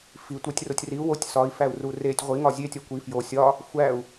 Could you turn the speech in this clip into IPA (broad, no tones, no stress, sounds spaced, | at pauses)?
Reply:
f i tʷ æ tʲ r o tʲ r i u̯ w o tʲ s ɒ i̯ f æ u̯ r u r e tʲ ʁʷ i ŋ ɒ zʲ e tʲ ɒ kʷ i f j o sʲ ɒ | xʷ æ u̯